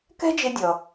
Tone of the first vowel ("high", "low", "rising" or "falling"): high